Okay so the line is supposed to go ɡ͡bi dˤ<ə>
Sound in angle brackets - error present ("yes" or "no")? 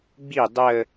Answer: no